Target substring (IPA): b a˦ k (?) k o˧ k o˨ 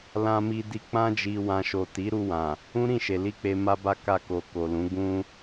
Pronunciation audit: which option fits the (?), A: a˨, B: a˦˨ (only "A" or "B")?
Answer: B